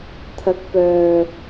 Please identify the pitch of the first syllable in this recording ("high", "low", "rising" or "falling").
rising